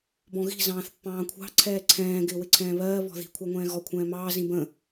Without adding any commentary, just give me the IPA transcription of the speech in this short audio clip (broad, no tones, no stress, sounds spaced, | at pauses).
b ɔ̃ ɣ i̤ z ɑ̃ː θ pː ɑ̃ː kʷʰ ɑ̤ ǀʰ ɛː ǀʰ ɛ̃ː ɡ ɪː w ɪ ǀʰ ɛ̃ː β ɜː β ɔ̤ ð i̤ kʷʰ ɑ ŋʷ ɛ̃ː ɣ ɔ kʷʰ ɛ̃ː m ɑː z ĩ b ə̃